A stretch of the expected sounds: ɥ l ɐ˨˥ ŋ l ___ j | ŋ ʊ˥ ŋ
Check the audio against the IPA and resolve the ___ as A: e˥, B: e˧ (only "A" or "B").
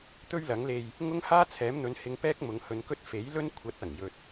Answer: B